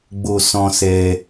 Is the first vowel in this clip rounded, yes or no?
yes